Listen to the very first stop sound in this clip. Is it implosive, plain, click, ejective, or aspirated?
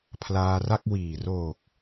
aspirated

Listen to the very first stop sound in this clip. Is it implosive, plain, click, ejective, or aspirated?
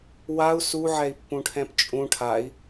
plain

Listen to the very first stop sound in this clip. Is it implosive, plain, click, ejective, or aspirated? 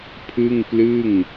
aspirated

